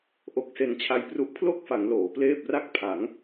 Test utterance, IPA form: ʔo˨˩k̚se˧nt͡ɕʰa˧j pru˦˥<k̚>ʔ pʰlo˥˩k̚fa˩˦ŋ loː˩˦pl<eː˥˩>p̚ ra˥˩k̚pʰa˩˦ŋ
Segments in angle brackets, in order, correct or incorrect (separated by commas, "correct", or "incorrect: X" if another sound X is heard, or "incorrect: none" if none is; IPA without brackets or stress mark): incorrect: none, correct